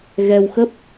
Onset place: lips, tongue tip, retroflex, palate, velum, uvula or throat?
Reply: velum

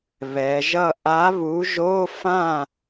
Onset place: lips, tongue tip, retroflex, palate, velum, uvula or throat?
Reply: lips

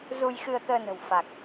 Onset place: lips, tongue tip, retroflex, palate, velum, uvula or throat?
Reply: tongue tip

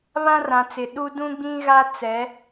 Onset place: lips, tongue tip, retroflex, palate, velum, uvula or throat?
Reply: lips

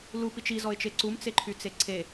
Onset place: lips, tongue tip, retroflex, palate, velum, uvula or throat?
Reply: tongue tip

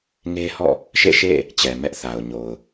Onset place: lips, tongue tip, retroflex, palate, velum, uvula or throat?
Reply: velum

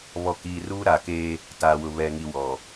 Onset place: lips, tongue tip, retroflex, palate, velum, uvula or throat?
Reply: lips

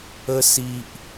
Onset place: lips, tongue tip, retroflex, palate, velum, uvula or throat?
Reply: tongue tip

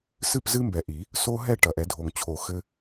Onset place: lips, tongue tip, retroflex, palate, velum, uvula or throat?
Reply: tongue tip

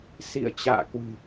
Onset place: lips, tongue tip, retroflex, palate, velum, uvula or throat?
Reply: tongue tip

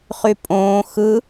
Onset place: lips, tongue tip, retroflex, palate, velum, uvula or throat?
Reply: uvula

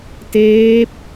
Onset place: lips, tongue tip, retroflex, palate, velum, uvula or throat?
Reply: tongue tip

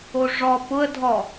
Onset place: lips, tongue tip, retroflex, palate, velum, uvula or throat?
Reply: retroflex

